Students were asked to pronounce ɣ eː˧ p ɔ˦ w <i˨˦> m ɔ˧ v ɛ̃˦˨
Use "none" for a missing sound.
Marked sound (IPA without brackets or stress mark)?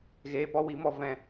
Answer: i˨˦